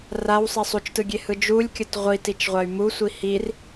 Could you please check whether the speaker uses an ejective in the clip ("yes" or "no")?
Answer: no